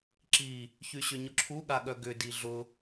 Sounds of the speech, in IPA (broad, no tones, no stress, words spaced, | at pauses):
ǁi | çyɕʏɲʊǁʰu ɠaɠœɡʏ diɮʊ